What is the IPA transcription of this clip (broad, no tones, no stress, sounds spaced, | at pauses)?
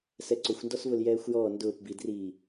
s ɛ ǀ ʊ xʷ n d ɔ s v ʊ l j ɛː xʷ j ɔː n d ʊː p b i d r iː